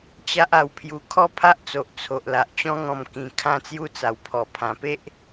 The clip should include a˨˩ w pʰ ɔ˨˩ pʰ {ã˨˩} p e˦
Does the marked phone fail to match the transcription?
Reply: no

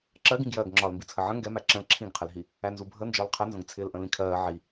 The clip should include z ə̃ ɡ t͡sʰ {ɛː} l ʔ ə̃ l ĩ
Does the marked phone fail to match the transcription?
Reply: yes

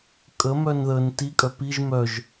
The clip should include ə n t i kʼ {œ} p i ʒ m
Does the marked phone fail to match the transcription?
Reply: no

